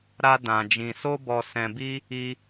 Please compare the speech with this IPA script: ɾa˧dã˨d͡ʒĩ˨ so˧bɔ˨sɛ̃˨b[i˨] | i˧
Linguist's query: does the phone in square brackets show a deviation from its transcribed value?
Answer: yes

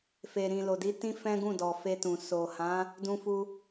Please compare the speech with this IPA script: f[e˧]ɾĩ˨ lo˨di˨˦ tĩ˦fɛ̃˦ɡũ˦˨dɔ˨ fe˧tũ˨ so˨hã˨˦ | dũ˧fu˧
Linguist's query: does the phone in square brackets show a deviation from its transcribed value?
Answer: yes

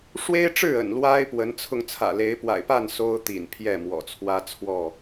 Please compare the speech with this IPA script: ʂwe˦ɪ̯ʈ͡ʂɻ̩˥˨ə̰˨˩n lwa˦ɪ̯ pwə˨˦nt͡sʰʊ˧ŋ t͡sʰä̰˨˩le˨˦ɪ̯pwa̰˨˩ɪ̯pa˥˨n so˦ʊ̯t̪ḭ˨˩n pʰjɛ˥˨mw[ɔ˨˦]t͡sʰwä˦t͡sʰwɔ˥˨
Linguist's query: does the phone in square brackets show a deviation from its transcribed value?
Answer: yes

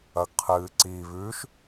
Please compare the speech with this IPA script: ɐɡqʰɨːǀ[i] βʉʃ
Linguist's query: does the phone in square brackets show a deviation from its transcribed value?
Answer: no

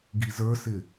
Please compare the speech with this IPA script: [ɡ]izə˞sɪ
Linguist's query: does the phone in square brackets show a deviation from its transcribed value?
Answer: no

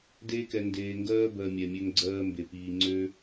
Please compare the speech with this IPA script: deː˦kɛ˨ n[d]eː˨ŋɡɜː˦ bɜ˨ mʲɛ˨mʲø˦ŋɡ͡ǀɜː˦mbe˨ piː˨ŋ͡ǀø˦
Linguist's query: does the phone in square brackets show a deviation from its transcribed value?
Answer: no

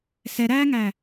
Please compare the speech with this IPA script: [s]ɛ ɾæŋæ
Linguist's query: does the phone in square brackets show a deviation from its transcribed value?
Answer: no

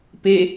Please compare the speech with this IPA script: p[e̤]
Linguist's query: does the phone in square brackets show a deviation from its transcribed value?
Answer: yes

